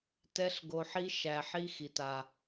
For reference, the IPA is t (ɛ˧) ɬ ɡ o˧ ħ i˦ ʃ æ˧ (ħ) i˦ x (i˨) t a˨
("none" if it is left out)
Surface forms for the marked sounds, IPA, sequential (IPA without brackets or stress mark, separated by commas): ɛ˦, ħ, i˨